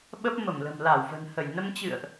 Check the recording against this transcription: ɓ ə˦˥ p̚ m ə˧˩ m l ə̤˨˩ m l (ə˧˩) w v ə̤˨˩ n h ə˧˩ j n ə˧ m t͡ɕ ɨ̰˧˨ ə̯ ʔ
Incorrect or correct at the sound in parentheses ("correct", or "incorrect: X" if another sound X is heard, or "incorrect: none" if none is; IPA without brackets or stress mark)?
incorrect: a˧˩